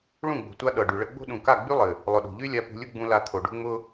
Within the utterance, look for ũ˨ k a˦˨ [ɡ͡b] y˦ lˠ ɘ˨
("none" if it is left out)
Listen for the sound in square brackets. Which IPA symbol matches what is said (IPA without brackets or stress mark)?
ɡ͡b